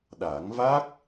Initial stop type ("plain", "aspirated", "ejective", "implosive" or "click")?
implosive